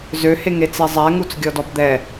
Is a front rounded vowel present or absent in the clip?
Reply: present